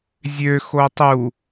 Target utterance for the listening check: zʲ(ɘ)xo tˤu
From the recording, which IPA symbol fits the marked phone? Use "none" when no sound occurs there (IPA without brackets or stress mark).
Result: ø